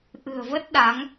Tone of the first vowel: low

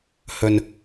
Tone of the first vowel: low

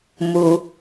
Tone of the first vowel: low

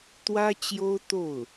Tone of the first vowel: high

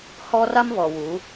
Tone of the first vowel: high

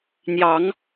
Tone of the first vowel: rising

